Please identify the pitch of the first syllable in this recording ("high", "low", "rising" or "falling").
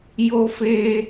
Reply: high